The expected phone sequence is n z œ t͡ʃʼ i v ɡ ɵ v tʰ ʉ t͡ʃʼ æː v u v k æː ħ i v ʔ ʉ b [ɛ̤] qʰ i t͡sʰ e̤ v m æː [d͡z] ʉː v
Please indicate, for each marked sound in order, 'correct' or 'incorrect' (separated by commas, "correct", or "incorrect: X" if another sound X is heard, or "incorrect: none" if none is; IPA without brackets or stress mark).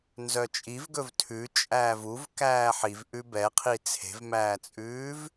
incorrect: ɛ, incorrect: t͡sʼ